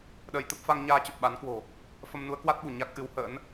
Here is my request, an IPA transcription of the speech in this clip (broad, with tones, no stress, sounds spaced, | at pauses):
ɗ əː˧ j t̪ ə˦˥ p̚ f a˧ ŋ ɲ aː˧ t͡ɕ ə˨˩ p̚ ɓ a˨˦ n k w o̤˨˩ | f ə˧ m n u˨˦ ə̯ k w a˦˥ t̚ ɓ u˧˩ ɲ a˦˥ k̚ ʔ ɨ˨˦ w h ə̰ː˧˥ n